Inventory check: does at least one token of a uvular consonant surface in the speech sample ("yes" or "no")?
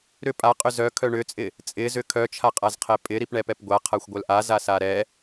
yes